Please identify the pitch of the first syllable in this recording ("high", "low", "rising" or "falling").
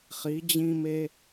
rising